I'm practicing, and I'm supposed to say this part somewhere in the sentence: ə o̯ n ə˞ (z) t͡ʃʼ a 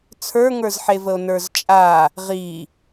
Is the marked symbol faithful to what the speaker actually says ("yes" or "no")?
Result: yes